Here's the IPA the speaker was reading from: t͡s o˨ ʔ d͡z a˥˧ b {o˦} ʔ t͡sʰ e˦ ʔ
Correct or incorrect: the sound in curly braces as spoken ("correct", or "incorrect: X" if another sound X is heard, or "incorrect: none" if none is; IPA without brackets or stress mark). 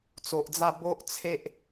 correct